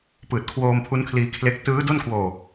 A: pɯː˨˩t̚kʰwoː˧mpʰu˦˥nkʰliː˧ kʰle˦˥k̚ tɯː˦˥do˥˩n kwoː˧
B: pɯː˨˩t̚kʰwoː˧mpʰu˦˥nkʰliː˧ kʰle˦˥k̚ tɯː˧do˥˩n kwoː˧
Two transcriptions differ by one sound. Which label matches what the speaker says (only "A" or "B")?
A